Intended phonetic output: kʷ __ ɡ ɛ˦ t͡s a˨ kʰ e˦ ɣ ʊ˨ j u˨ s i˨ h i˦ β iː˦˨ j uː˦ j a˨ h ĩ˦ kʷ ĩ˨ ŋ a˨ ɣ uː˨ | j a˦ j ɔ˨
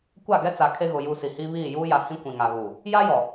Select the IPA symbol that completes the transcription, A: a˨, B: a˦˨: B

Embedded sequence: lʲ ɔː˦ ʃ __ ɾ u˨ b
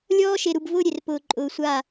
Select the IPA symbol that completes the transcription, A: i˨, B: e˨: B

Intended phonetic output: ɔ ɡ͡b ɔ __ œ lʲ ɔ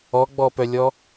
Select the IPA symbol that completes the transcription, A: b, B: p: B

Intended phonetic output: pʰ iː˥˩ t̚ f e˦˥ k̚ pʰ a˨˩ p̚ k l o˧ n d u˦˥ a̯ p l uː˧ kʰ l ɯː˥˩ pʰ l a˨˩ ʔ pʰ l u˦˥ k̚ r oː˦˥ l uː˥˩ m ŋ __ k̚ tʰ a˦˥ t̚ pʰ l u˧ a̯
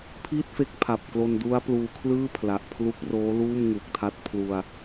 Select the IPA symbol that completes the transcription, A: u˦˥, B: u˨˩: B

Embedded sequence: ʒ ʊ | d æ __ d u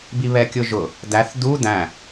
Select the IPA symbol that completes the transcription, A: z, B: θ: B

